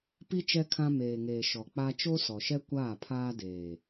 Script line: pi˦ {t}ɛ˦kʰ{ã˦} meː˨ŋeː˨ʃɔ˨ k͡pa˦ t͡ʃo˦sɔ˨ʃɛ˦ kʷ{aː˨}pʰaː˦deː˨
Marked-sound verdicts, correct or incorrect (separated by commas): incorrect, correct, incorrect